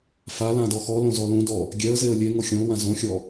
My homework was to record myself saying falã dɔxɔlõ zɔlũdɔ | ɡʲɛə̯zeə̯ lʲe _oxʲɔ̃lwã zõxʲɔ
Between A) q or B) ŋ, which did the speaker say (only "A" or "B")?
B